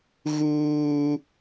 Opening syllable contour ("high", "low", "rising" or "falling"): high